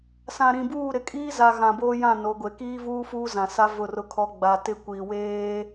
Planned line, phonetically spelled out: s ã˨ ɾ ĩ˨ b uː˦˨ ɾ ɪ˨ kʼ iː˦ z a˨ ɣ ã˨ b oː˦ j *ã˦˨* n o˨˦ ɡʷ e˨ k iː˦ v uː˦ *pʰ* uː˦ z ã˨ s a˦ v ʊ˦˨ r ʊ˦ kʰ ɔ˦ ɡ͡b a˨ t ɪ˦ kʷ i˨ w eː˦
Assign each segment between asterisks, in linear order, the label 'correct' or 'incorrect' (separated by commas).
correct, incorrect